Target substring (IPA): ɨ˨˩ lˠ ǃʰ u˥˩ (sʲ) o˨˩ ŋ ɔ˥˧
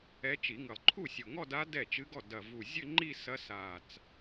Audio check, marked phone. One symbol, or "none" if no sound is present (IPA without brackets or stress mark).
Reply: sʲ